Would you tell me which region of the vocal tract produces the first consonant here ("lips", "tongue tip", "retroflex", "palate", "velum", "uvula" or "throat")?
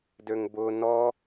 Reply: tongue tip